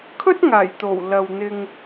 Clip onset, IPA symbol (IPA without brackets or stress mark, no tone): kʰ